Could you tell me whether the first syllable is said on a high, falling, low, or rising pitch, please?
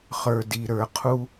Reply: low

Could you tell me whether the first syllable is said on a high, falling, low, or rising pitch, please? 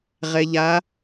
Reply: low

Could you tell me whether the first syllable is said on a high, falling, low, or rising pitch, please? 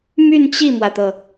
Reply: falling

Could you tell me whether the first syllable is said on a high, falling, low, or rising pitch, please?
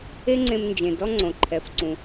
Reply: high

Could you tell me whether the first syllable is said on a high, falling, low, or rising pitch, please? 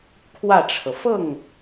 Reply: falling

